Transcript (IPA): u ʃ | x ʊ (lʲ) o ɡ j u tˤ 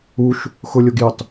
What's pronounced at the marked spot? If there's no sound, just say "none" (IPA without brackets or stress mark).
lʲ